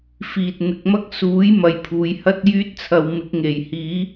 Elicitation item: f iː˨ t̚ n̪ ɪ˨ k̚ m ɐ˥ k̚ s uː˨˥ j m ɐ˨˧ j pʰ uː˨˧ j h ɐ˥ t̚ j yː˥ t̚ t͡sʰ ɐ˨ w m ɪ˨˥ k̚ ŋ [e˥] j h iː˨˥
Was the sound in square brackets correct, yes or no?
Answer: no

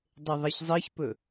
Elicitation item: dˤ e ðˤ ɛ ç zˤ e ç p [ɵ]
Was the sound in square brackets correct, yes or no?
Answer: yes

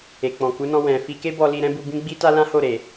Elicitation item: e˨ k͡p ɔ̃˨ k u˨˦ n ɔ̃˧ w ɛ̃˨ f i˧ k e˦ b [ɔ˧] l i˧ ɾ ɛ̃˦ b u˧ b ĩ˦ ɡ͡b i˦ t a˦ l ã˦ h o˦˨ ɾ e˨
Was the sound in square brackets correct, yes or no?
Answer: yes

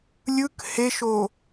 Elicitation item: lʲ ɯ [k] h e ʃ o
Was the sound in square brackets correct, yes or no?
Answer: yes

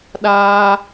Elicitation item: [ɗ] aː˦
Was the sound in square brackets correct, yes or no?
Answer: yes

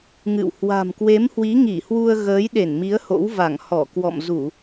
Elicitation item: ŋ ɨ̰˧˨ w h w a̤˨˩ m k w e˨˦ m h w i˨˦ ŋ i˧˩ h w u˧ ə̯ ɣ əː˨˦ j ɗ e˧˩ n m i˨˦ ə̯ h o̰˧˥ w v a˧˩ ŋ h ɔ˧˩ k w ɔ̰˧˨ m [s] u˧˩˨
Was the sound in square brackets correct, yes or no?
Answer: no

